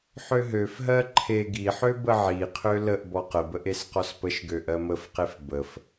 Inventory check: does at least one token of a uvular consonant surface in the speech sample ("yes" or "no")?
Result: yes